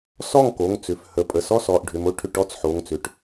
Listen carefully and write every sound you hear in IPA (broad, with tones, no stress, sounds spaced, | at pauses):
s ɔ˥˩ ŋ k o˩˧˩ ŋ t͡s ʏ˩˧˩ f h ə˩˧˩ pʼ ə˩˧˩ s ɔ˥˩ s ɔ˩˧˩ ʔ ɖʱ ʏ˩˧˩ m o˥˩ ʈʰ ʏ˥˩ ʈ ɔ˥˩ t͡s ħ o˩˧˩ ŋ t͡s ʏ˩˧˩ ʈ